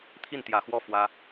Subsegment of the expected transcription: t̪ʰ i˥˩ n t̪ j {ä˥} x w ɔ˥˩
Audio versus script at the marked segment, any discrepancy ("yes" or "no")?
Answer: yes